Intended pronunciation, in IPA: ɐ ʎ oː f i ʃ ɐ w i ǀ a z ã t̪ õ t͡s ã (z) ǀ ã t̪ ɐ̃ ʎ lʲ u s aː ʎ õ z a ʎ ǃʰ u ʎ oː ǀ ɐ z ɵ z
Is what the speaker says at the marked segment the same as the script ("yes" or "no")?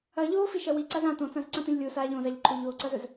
yes